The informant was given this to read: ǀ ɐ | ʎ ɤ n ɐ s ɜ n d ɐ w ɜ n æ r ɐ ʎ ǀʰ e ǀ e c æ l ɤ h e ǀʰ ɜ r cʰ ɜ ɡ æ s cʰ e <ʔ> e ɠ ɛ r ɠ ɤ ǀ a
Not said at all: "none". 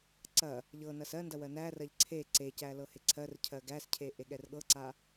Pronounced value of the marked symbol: ʔ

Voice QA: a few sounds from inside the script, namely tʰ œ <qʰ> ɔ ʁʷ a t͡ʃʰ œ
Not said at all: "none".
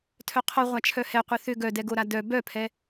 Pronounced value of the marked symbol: qʰ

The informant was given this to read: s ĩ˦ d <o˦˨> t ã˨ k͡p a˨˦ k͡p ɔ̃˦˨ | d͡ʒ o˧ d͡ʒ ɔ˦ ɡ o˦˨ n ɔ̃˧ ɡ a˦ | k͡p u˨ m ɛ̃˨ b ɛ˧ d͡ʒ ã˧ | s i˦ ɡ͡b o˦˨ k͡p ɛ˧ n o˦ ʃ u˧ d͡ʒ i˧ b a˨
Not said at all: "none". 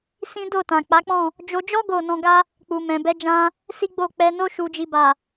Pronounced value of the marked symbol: o˦˨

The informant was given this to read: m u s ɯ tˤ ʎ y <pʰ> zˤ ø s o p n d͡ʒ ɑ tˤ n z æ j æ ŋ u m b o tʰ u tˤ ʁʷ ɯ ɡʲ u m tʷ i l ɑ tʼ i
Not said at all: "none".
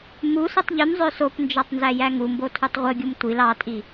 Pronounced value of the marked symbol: m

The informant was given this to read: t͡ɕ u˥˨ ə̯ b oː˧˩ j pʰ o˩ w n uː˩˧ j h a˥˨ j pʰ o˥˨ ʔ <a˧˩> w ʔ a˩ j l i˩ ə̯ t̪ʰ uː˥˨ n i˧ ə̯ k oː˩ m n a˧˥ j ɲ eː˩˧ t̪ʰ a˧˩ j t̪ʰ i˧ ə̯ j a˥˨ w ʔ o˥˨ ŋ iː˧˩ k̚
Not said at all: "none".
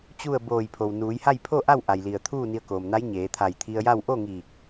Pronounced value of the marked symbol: a˥˨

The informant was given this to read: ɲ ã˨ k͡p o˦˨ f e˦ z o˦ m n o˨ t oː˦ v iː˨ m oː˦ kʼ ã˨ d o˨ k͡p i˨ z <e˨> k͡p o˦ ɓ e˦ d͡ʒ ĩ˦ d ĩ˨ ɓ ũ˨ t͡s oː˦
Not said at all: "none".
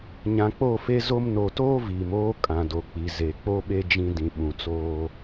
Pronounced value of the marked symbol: e˨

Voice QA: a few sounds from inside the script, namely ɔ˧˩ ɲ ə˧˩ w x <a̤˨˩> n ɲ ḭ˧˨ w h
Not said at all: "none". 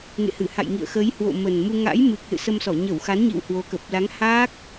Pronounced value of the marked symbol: a˨˦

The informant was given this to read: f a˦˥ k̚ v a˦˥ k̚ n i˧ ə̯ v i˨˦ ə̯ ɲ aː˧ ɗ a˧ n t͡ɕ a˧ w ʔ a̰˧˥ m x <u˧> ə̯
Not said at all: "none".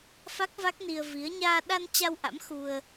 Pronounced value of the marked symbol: u˧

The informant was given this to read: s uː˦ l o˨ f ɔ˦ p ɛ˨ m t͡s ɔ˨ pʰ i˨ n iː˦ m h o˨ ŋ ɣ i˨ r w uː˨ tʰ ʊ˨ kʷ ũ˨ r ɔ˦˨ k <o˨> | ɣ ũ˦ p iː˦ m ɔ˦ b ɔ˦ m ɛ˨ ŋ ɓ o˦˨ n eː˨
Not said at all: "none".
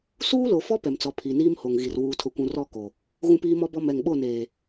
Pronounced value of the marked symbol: o˨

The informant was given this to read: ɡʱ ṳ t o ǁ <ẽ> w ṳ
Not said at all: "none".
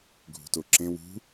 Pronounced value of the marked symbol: ẽ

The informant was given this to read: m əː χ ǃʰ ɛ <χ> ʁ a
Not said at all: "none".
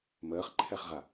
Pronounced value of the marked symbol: χ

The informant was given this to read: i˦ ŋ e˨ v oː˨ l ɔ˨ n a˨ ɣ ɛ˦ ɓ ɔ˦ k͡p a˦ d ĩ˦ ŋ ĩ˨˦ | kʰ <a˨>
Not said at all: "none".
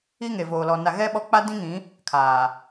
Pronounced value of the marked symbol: aː˨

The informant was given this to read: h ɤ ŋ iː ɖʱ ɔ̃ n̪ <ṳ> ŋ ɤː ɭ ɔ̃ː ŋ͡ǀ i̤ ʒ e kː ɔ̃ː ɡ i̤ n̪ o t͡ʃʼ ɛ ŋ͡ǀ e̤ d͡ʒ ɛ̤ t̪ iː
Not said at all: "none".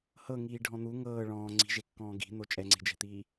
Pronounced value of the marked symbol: u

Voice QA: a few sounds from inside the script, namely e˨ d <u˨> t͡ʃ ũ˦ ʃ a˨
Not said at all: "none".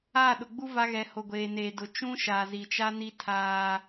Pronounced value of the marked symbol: ʊ˨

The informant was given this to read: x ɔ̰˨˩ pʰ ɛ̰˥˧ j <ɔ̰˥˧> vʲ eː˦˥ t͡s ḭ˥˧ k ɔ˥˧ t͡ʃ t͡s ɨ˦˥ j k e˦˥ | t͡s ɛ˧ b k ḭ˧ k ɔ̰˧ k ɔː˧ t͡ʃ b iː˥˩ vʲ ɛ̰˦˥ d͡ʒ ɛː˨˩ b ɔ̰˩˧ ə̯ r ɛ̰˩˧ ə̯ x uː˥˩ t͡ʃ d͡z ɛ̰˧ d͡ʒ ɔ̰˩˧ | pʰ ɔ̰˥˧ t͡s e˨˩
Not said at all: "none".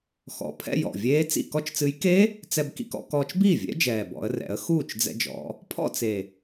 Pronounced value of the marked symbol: ɔ̰˨˩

